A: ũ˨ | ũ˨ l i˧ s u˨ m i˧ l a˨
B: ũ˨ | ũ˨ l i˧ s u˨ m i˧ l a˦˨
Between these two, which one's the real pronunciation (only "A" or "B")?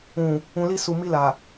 A